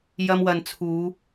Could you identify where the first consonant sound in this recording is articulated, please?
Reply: palatal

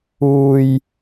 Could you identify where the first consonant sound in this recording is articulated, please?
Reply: palatal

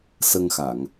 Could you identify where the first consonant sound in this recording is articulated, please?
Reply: alveolar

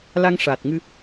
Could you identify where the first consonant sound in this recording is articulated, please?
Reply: alveolar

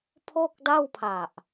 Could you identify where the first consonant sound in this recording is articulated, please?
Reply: labial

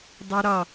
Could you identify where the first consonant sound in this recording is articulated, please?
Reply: alveolar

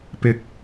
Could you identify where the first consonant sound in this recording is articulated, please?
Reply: labial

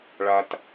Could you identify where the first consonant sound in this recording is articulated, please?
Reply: retroflex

